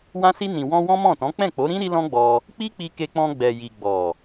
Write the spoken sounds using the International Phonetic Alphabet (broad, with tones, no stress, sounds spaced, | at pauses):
w ã˧ s i˧ n ĩ˨ w ɔ̃˧ w ɔ̃˦ m ɔ̃˦˨ t ɔ̃˨˦ k͡p ɛ̃˦˨ k͡p o˨˦ ɾ ĩ˦ ɾ i˦ l ɔ̃˦ ɡ͡b ɔ˧ | k͡p i˦ k͡p i˧ k e˧ k͡p ɔ̃˧ ɡ͡b ɛ˨ j i˨ ɡ͡b ɔ˨